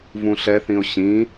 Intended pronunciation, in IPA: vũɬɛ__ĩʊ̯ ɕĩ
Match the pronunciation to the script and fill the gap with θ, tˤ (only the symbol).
θ